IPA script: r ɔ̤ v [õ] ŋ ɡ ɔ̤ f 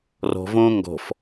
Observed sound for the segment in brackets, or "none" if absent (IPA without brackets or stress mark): õ